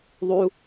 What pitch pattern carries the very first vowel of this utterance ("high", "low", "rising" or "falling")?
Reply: low